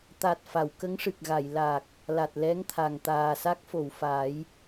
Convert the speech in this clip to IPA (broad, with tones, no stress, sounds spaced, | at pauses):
t̪ a˨˩ t̚ f a˨˩˨ w k ə˧˥ ŋ ʂ ɨ˨˩ k̚ ɣ a˨˩˨ j l a˨˩ k̚ | l a˨˩ t̚ l ɛ˧˥ ŋ t̪ʰ a˨˩ ŋ t̪ aː˨˩ s a˦˥ k̚ f o˨˩˨ w f a˨˩˦ j